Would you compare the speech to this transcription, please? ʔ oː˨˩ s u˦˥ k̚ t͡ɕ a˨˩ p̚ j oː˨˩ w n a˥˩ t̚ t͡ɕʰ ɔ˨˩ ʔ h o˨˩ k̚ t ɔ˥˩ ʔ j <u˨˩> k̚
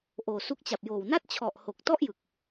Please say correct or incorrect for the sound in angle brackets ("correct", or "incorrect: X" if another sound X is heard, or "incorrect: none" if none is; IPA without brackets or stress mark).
incorrect: ɯ˨˩